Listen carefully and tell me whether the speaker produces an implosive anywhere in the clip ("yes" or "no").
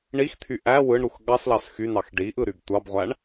yes